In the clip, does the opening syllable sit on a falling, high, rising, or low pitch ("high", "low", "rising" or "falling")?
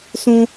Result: high